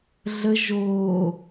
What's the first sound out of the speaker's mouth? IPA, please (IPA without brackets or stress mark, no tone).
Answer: ɮ